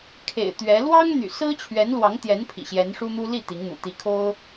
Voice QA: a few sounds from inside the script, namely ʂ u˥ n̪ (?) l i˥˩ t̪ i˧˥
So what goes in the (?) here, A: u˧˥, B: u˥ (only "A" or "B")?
B